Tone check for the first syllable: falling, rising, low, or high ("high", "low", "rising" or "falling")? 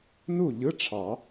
falling